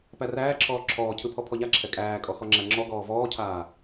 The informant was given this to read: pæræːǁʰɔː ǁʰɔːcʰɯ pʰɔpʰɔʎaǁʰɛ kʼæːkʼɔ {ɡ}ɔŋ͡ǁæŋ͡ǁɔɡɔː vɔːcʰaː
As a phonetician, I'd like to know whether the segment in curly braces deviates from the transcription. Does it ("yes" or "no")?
yes